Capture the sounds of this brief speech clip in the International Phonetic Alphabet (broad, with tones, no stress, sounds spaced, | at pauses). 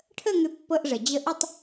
ʈʰ ə˥˧ ŋ ʏ˧ pː ɤ˧ ʔ ʐ ə˩ d͡ʑ ə˧ ʔ ʏ˥˧ tˤ